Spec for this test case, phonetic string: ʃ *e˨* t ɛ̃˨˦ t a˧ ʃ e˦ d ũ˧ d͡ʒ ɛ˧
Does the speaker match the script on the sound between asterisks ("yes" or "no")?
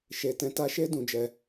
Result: yes